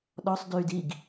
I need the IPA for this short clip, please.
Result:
ɗ ɔ sˤ d yː d i ɡ

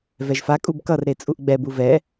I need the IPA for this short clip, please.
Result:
v ɛ ʒ f a kʼ u b k ʌ r ɾ e t͡sʼ u ʔ ɡ͡b ɛ b u v ɛ

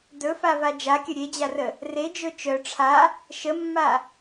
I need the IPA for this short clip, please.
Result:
d ɵ f a v a d͡ʒ a kʲ ə ɾʲ e d͡ʑ a r ə | r e d͡ʒ ɵ t͡ʃ œ ʈ͡ʂʰ a | ʃ ə mː a

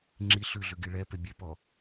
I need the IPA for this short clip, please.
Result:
ŋ͡ǁ i ɬ ʉ ɮ ʉ ɡ i ɭ ɛ p e bʲ ɛ p ɔ

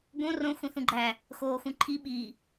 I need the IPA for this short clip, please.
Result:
ɡ õ r õ x ũ θ ũ ɡ͡ǃ æ | x oː x ũ ǃʰ i ɓ iː

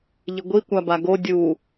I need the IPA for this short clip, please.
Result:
ʎ ɪ ɡʷ i kʷ a b a ɡ o dʲ u

